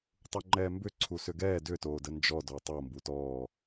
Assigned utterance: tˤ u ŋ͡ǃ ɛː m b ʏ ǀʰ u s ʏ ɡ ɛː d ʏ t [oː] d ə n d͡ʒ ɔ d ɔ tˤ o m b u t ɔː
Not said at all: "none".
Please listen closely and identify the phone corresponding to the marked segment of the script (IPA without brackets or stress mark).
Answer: oː